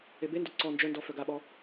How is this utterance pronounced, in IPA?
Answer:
ebendo ǀɔ nd͡ʒœndɔ fœɡaɓɔ

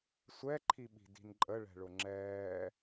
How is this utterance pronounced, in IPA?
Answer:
sʷɛǃʰiɓi̤ di̤nǃʼə ɭɛ̤ɭʊŋ͡ǁɛː

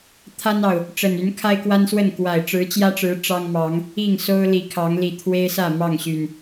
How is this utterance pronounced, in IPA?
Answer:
t̪ʰa˦nɑ˨˩ʊ̯ | ʈ͡ʂə˨˩n y˨˦nkʰa˦ɪ̯kwa˦nswə˥˨n kwa˨˩ɪ̯ʈ͡ʂɻ̩˨˦t͡ɕjä˦ʈ͡ʂɻ̩˨˦ ʈ͡ʂɑ˦ŋmɑ˨˦ŋ | i˥˨ŋ so˦ʊ̯li˨˦ kʰɑ˨˦ŋli˨˩t̪ʰwe˦ɪ̯sä˥˨ mɑ˥˨ŋɕy˨˩n

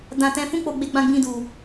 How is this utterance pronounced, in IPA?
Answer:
dã˧ tɛ̃˧ fũ˦k͡po˧ ɡ͡be˦ɡ͡bã˦ɡ͡bĩ˦du˧

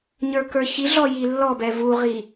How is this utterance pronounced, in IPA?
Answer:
ɲə˞kə˞çiɮɔ jilːɔbɛ vuʁi

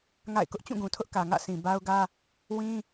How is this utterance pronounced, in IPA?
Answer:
ŋa̰˦˨ɪ̯kʊ˦ʔ t͡ɕũ˦˨ɡũ˨tʰʊ˦ʔkä˨ ŋä̰˦˨sʰĩ˨ ba˦ʊ̯ɡä˦ | wĩ˦

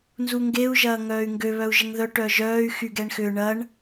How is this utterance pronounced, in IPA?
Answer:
nzuŋɡeu̯ ʒɐːŋœːy̯ŋɡø βœu̯ʒəŋðœ ʈœʒœːy̯ xyɡ ɛɳxʏ ɳɐɳ

